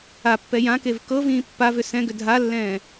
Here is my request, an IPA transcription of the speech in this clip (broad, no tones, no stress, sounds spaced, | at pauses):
a pː ɛ j ã k e v k ɤ v ĩː pː a v ʏ s ɛ̃ ɡ ʏ dʱ a lː ɛ̃ː